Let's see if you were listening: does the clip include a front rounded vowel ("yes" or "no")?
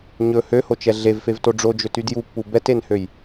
yes